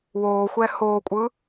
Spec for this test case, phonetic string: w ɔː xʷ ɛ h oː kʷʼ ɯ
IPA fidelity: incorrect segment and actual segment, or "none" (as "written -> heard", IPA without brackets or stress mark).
ɔː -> oː